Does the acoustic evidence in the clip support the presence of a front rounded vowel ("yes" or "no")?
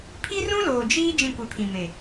no